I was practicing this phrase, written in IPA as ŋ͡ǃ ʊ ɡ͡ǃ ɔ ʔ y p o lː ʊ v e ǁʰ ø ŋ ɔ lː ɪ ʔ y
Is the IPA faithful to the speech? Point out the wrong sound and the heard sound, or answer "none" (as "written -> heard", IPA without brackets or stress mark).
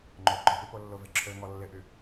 none